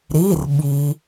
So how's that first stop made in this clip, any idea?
implosive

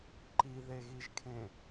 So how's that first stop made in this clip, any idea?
click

